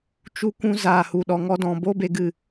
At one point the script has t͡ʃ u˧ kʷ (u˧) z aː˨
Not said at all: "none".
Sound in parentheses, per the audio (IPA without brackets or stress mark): ũ˧